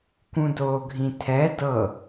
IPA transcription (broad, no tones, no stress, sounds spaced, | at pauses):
k ũ d oː ɡʱ ĩ tʰ ɛ d ɤ